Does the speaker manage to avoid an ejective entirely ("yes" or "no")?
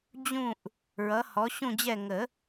yes